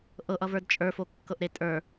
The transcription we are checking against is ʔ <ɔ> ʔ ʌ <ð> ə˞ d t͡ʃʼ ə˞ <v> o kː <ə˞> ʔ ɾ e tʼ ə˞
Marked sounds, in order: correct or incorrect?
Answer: incorrect, incorrect, incorrect, incorrect

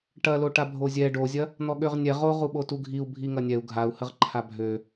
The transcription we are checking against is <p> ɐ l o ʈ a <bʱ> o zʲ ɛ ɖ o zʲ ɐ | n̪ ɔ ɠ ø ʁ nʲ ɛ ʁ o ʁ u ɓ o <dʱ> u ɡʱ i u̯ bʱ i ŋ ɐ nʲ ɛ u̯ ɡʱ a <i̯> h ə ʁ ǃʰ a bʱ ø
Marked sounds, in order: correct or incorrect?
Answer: incorrect, correct, incorrect, incorrect

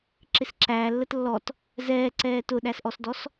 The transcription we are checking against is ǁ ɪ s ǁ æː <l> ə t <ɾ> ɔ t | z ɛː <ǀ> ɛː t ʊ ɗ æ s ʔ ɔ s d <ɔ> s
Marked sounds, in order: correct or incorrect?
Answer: incorrect, incorrect, correct, correct

